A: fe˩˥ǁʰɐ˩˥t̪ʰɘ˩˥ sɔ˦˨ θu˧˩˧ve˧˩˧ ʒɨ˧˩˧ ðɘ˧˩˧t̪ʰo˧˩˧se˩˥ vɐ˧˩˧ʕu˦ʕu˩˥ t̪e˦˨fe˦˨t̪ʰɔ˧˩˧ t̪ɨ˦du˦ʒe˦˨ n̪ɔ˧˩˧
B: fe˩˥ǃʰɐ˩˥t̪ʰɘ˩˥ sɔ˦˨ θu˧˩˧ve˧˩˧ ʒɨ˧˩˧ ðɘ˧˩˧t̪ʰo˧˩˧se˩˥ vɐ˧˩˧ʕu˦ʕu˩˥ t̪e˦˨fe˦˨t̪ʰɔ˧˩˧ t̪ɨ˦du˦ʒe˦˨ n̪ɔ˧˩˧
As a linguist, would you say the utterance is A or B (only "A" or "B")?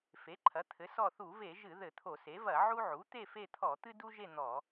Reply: B